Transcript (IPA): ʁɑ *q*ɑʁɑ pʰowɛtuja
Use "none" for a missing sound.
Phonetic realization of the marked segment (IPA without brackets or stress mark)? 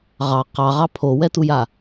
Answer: q